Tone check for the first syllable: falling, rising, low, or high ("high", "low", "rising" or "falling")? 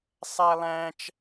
high